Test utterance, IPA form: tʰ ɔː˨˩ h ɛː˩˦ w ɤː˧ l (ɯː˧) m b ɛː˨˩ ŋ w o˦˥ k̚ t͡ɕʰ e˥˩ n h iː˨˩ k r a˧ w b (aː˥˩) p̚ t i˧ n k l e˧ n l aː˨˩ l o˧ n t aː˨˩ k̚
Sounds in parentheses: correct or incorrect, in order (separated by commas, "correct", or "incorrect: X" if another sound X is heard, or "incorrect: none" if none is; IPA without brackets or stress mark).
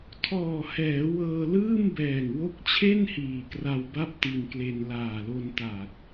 incorrect: ɯː˥˩, incorrect: a˥˩